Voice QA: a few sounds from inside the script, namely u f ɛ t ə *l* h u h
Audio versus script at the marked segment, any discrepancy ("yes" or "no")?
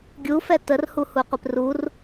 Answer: yes